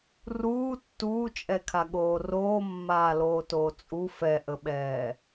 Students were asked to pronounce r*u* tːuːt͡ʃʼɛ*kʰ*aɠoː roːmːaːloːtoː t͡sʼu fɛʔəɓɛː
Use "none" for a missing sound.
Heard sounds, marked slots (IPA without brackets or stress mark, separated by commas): uː, kʰ